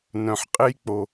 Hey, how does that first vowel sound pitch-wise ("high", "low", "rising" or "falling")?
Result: low